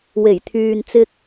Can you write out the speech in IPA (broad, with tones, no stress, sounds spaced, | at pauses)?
w e˨˩ j t̪ʰ yː˨ n t͡s ɪ˧ k̚